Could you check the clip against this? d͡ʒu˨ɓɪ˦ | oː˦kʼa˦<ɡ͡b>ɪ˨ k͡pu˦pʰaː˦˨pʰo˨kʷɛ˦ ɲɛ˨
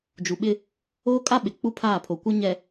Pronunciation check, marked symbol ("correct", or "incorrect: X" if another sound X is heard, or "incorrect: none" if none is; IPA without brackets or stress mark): incorrect: ɓ